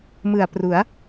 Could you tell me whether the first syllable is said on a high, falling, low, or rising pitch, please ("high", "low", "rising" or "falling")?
low